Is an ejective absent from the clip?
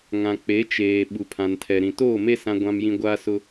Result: yes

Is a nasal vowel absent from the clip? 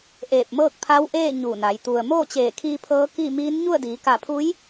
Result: yes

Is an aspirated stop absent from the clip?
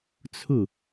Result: no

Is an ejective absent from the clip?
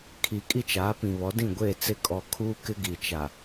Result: no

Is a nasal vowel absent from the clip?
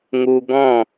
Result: no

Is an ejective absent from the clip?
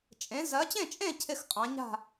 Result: no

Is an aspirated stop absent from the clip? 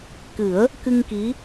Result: yes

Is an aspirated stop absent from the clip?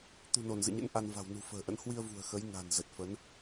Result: yes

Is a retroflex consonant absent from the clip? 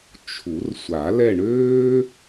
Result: no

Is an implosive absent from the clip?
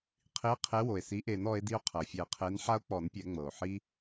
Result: yes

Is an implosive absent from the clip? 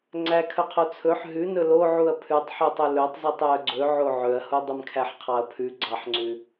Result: yes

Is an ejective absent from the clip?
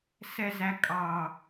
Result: no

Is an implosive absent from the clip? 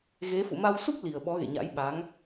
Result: no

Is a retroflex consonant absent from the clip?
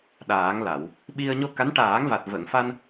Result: no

